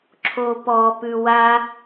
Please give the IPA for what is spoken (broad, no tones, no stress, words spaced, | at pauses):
ǁʰopɔpʉ wa